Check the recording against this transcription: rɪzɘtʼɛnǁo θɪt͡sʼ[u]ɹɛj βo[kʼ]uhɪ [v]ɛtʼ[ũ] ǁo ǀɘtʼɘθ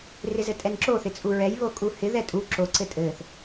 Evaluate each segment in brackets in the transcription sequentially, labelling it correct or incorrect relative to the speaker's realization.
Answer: correct, correct, incorrect: ð, incorrect: u

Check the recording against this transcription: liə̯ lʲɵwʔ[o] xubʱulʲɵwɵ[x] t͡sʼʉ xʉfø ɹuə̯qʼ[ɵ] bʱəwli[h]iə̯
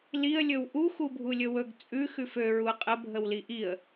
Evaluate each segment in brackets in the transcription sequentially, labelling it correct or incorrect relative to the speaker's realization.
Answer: incorrect: u, incorrect: ɡ, incorrect: ə, incorrect: ʔ

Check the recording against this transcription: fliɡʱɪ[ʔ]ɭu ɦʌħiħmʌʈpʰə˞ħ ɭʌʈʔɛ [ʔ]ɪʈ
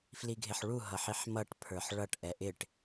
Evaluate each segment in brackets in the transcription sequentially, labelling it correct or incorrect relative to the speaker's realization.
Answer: incorrect: ħ, correct

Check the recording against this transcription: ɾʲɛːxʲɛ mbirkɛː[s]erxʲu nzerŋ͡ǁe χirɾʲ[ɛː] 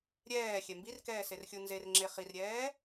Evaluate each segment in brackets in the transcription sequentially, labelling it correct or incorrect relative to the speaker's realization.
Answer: correct, correct

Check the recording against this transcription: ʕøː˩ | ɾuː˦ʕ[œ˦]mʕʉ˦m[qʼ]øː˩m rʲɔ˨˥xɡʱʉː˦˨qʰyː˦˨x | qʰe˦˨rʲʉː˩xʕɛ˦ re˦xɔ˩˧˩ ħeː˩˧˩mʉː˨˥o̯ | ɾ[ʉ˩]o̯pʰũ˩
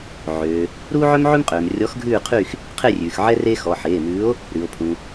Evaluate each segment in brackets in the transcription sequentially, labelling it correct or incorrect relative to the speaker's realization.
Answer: correct, correct, correct

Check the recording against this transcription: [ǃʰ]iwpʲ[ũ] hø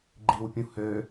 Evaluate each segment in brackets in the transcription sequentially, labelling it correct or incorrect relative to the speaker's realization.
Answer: incorrect: ɡ͡ǃ, correct

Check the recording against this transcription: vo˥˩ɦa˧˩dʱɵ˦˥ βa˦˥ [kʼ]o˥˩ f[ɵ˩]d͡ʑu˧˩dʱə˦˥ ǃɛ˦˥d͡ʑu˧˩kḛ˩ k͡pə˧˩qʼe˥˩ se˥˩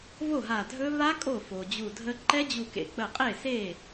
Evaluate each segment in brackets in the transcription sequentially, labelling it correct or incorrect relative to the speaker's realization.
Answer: correct, incorrect: o˩

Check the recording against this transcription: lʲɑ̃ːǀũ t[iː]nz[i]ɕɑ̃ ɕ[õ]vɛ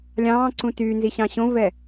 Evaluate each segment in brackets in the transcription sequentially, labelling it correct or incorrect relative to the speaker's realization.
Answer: incorrect: yː, correct, correct

